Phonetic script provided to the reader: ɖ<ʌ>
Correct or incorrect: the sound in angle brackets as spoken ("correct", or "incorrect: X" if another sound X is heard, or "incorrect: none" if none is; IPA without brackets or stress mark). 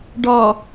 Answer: incorrect: ɒ